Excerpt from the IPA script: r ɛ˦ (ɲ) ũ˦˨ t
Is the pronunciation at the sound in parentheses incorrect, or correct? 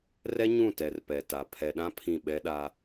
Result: correct